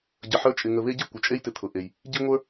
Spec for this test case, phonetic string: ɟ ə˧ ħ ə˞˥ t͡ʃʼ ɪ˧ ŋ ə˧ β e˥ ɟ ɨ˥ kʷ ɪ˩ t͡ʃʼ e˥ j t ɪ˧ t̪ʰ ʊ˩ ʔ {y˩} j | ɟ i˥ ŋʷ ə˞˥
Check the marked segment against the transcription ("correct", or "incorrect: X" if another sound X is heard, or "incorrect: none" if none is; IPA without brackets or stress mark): incorrect: e˩